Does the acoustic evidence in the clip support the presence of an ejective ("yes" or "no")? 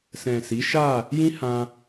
no